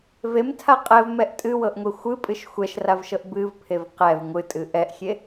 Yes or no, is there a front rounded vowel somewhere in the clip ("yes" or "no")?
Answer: no